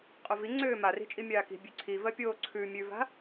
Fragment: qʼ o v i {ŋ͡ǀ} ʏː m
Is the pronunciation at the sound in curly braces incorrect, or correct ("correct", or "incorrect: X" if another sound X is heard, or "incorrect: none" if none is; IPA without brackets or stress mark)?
correct